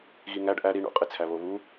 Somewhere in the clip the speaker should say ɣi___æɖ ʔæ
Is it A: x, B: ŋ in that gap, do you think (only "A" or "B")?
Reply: B